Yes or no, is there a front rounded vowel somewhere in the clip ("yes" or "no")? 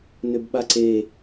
yes